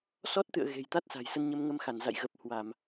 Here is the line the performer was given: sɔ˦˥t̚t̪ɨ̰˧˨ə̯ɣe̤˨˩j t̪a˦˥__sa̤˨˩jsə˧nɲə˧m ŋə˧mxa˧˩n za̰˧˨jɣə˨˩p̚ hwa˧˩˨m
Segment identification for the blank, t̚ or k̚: t̚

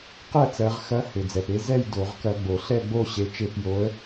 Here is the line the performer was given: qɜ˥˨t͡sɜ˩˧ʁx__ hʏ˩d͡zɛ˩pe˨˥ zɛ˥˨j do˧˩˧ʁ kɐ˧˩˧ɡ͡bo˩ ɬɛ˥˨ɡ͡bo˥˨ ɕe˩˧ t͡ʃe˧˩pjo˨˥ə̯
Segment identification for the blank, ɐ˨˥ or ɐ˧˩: ɐ˨˥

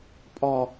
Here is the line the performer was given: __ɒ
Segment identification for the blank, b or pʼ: pʼ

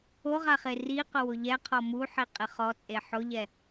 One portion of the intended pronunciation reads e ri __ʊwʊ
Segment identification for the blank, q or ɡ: q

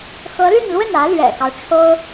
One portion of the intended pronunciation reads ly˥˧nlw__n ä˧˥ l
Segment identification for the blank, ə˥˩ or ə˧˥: ə˥˩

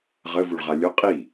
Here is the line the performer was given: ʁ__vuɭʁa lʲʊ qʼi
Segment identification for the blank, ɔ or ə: ə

